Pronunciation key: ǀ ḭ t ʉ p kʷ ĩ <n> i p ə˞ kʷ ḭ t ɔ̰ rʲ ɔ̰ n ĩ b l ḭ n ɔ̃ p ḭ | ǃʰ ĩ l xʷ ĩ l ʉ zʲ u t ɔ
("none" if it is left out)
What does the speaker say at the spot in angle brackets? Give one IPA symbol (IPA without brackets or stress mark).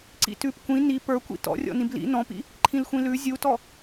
n